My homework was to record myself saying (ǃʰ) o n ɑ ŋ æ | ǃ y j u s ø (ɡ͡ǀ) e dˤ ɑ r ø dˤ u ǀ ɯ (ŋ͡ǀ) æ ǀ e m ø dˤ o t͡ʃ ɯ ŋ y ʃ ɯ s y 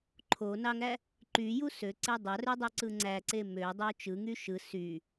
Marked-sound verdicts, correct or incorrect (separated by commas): correct, incorrect, correct